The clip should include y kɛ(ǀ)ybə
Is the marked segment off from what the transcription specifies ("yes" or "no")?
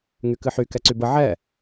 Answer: no